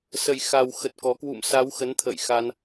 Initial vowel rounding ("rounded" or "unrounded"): unrounded